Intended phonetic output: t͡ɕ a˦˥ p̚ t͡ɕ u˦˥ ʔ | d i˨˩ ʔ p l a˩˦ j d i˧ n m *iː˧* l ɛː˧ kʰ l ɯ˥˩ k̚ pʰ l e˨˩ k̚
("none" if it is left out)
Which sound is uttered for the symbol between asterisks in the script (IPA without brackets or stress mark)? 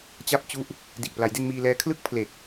iː˧